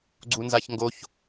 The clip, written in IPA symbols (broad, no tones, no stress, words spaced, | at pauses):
ɡ͡ǀunzaçŋɡoç